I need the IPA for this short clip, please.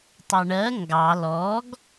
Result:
tˤʌɳɜ ŋɡɑ lɔɡ

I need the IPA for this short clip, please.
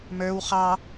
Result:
mə˞w χɑ

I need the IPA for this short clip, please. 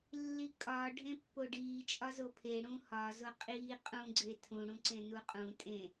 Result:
lːikʼɒː ɖʱẽpːoɖiː t͡ʃʼɒzopʰe ɽũhɒ zoqʼiː qʼũ ɡ͡ǀetʰũ ɽũǀẽnuqʼũ tʼẽ

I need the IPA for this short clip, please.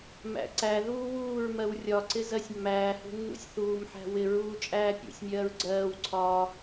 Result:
mæ̰ǀæðuː wuːɹmɜw rʲɒǀɪ zɜsʲmːæːhṳ nːṵsʲθuːmħæ̤ wɪɹuː t͡ʃʼæːpʲṵsʲmʲɜːɹ ɡ͡ǀɜːwǀʰɒː

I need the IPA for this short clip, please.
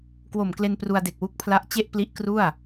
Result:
kwo˨˩mkle˧n pru˧a̯de˨˩k̚ wu˦˥k̚pʰla˦˥ʔ t͡ɕe˥˩ʔpli˦˥ʔ kru˥˩a̯

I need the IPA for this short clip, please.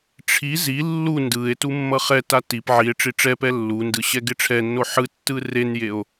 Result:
ʈ͡ʂʰi zi lːu ndɯe̯ tumːʌχɛta tip ʕie̯ʈ͡ʂi ʈ͡ʂɛpɛ lːundɯ ɕɛɡeʈ͡ʂʰɛnːo ħɯtːɯ renjeo̯

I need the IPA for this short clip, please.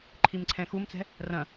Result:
ǃʰimǀʰɛ̃xumt͡sɛ̤ | rɐ̃

